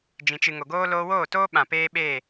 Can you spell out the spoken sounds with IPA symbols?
d͡ʒ ĩ˨ t͡ʃ ɨ˨ ŋ o˨ ɡ oː˦ l oː˧ w oː˦˨ t oː˦ ɓ ã˨ p eː˦ ɓ eː˦˨

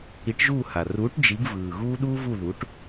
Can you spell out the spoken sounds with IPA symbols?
i˨˥ ʈ ʒ uː˥˨ h a˨˩ r uː˨˥ ʈ d͡ʒ i˨˥ ɡ v ɯː˨˩ ɣ uː˥ ɗ uː˥ v u˥˨ ð u˨˥ ʈ

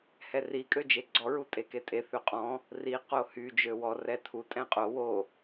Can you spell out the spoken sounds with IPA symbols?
h ɛ r i kʼ ø d͡ʒ e ɡ͡ǀ ɔ ɹ u tʼ e k e tʼ e θ ø qʼ ɔ̃ | r i q o h y d͡ʒ ø w ɔ r ɛ tʰ u tʼ ɛ̃ qʼ o w o

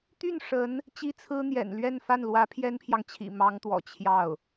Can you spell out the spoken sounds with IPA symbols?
t̪ y˥˩ n ʂ ə˧˥ n | t͡ɕ i˥ t͡sʰ ɹ̩˥ n̪ j ɛ̰˨˩ n l ɥ ɛ˥˧ n f a˥˩ n l w ä˧˥ pʰ j ɛ˥ n pʰ j ɑ˨ ŋ t͡ɕʰ ḭ˨˩ m ɑ˧˥ ŋ t̪ w ɔ̰˨˩ t͡ɕʰ j ɑ˥˩ ʊ̯

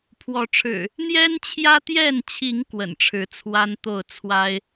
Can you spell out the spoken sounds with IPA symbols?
pʰ w ɔ˨˦ ʈ͡ʂʰ ɻ̩˨˩ | n̪ j ɛ˦ n t͡ɕʰ j ä˦ t̪ j ɛ˥˨ n t͡ɕʰ i˨˦ ŋ k w ə̰˨˩ n ʈ͡ʂʰ ɻ̩˨˦ t͡sʰ w a˦ n t̪ o˥˨ ʊ̯ t͡sʰ w a˦ ɪ̯

